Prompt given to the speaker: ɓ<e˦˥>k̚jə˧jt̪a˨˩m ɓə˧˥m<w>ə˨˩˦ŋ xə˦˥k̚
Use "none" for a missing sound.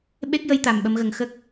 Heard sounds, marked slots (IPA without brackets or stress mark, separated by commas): e˦˥, ɣ